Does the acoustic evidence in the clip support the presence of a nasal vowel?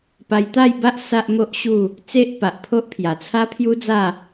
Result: no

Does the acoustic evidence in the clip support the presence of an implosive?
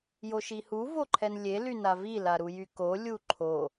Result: no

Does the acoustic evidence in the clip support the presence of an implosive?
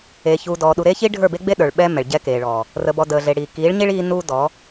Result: yes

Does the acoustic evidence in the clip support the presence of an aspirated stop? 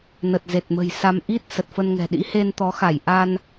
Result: no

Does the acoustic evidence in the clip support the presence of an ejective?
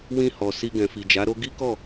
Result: no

